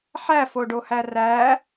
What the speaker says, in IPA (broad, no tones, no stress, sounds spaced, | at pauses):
ħ æ f o ɖ o h æ r æ